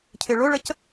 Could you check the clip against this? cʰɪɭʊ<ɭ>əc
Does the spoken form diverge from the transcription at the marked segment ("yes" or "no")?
no